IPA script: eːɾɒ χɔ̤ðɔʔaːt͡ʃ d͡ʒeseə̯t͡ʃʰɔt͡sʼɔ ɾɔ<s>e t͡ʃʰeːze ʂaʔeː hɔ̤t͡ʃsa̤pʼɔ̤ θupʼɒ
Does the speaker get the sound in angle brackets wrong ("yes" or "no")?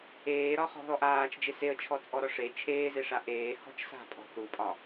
yes